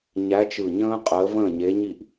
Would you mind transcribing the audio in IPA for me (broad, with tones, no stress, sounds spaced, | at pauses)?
ɲ æ˨˥ t͡ʃ ɯ˧˩ ɲ ə̃ː˥ qʼ əː˨˥ v ə̃ː˥˩ ɲ e˨˥ ɲ i˥˩ ʔ